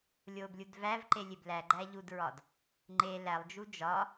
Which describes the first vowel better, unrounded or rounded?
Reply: rounded